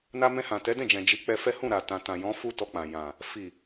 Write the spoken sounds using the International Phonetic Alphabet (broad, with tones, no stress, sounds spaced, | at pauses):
n a˧ m ɛ̃˧ h ã˨ t ɛ˨˦ d ɛ̃˦˨ d͡ʒ ɛ̃˨ d͡ʒ i˨˦ k͡p ɛ˧ f ɛ˦ h ũ˦˨ ɾ a˨ t ã˨ t ã˨ j ɔ̃˨˦ f u˦ t ɔ˧ k͡p ã˨ j ã˨ | f i˨